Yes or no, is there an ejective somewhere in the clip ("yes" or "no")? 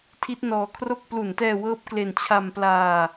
no